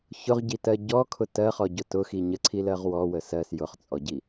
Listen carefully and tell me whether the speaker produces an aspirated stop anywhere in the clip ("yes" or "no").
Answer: yes